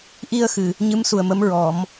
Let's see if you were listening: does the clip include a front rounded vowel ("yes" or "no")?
no